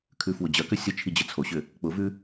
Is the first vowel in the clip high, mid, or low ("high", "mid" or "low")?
high